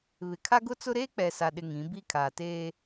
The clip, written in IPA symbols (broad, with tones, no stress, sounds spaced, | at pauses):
β ɪ˨ kʰ a˦ ɡ ʊ˦ t͡s ʊ˦ ɾ eː˦ k͡p ɛ˨ s a˨ ɗ ɪ˨ ŋ ĩ˨˦ b i˦ kʰ aː˨ t eː˦